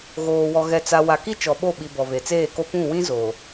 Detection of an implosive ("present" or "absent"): present